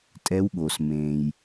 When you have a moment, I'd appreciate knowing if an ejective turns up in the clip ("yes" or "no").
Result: yes